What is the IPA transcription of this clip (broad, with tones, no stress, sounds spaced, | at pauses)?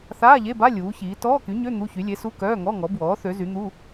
θ aː˧˥˧ ʎ e˧˥˧ b a˧˥˧ lʲ uː˨˥ ç iː˨˥ t ɔː˧˥˧ k y˨˥ ɲ ø˧˥˧ n̪ u˧˥˧ ç y˨˥ lʲ e˨˥ s u˧˥˧ k œː˧˥˧ ŋ ɔ˧˥˧ ŋ ɔ˨˥ b w ɔː˨˥ θ ø˨˥ z y˨˥ n̪ u˧˥˧